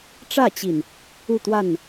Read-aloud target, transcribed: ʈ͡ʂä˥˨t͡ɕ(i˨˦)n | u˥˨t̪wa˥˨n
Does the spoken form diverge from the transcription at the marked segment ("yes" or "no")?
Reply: yes